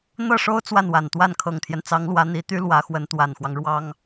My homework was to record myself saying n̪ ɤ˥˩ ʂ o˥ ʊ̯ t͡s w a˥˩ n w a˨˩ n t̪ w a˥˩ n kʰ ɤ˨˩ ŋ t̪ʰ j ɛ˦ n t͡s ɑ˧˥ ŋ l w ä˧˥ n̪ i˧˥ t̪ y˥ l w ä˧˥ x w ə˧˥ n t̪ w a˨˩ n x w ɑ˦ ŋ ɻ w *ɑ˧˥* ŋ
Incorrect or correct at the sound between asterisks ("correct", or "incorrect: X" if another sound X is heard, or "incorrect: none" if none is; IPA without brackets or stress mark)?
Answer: incorrect: ɑ˥